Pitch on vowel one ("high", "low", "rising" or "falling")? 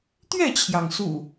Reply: falling